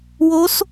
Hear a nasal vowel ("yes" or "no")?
no